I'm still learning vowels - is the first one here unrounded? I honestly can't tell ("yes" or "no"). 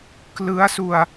yes